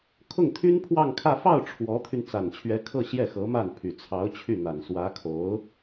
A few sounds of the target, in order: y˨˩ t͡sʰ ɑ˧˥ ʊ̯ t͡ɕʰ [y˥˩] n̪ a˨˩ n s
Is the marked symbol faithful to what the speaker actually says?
yes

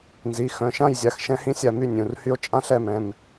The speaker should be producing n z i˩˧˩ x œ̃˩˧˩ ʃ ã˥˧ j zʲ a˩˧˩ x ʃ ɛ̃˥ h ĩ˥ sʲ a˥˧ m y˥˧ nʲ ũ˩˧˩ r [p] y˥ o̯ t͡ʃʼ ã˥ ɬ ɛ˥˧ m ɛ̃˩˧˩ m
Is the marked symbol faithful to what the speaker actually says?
no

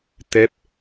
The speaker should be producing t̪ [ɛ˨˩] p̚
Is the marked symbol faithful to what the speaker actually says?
no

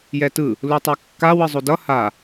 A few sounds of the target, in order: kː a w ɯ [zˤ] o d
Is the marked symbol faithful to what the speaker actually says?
yes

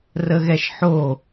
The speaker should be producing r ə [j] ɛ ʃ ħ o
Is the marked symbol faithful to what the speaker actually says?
no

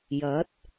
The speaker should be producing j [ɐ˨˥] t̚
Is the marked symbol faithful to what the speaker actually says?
yes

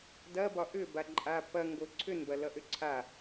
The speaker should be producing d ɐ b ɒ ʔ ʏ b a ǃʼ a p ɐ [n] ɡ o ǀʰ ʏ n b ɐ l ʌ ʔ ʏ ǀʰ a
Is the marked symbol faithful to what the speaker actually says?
no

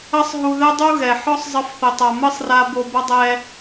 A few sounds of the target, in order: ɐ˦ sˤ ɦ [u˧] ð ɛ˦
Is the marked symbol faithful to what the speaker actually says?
yes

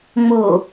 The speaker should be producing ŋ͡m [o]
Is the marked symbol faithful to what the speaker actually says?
yes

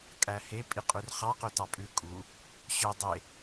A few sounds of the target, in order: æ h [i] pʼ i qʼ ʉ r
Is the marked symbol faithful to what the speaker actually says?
no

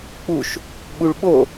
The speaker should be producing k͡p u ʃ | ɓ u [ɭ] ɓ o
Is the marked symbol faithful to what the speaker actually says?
yes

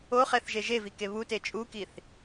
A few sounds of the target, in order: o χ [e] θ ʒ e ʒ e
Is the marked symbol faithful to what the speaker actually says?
no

